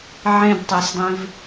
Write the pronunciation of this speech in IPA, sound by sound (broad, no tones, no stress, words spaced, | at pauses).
ʕẽdtˤesdˤĩv